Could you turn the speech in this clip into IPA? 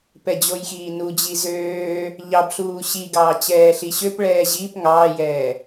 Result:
pɛd͡ʑojxiːnu d͡ʑizøː | ʎɑbɬuː ɕiɡɑː t͡ɕɛːɬiɕøp ɭɛːʑiːp ŋɑːjɛː

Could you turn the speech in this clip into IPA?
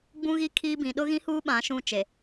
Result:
ɡ͡bũ˦ɣi˦ kʰiː˦bĩ˨ ɗʊ˦ɣĩ˦huː˦ ɓã˨˦ʃũ˦˨ t͡ʃe˨

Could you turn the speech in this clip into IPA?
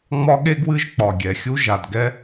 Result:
ŋ͡mɒ˦˥ɠe˦˥ɡwɨ˦˥ʒ k͡pɒ˩ ɡʲɛ˩xʲu˦˥ ʒa˩dɡɛ˦˥

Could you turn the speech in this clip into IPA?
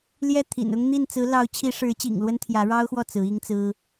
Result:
ljɛ˥˩t̪ʰḭ˨˩nʊ˥ŋ n̪i˥˩n t͡sɹ̩˧˥ lɑ˧˥ʊ̯t͡ɕʰi˧˥ʂɻ̩˧˥t͡ɕḭ˨˩ŋ lwə˥nt̪ʰjä˧˥ɻɑ˥ʊ̯xwɔ˥˩ t͡sɹ̩˧˥i˥ŋt͡sɹ̩˥

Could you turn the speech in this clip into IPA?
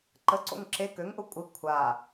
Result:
ǃə ǀo̰ŋǁe køŋ ʔʊkʷʼɪ kʷʰa

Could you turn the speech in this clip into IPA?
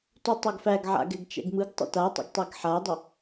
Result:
tutˤoɡfæɡ ʕa̰ɡɛɡt͡ʃɛ̰ɡmɯɡ tˤə̰tatˤə̰ɡ tˤeɡħadˤə

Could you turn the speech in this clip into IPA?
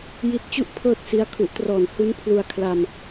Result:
ji˦˥t̚t͡ɕu˥˩ʔ pʰɤː˥˩t̚si˦˥a̯ kʰu˨˩ʔtrɔː˨˩n hu˦˥n pʰlu˧a̯ kʰla˧m

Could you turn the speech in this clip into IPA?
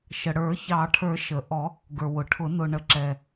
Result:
ʃə˩ɽə˞˨˩˦ çɑ˨˩˦ʈʰə˞˨˩˦ ʃə˩ʔɔ˨˩˦ | ɡə˞˩wʊ˩ʈʰʊ˨˩˦ nʊ˩ ɳə˩ ǁɛ˩

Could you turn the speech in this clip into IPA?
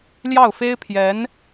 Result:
ljɑ˥˩ʊ̯fe˥ɪ̯pʰjɛ˧˥n

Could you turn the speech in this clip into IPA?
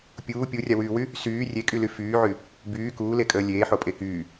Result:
pʲuː pʲurʲawyːwy | syː rʲekʼyly fyːʕy | byː kuːlekʼəː lʲeːħopʼe kyː

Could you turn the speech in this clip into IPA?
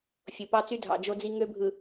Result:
fʲo˨ pɑ˦t͡sy˦dʱɑ̰˨ d͡ʒo˦d͡zi˦ ŋø˦bʱɯ˨

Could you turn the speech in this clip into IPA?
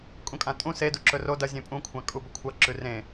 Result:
kʼũkʼãtʼũ sedu ǁɵro dɐ zʲẽpʼũkʷʰã kʼubɵkʷʰɐ ǁʉrẽ

